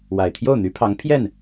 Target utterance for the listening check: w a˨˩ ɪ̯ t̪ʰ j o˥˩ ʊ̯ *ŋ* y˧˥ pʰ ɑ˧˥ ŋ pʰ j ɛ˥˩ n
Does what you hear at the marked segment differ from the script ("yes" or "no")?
yes